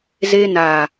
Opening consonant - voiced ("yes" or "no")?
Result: yes